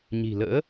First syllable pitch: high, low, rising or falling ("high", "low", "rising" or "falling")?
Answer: low